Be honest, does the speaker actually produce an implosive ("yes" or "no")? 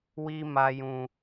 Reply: no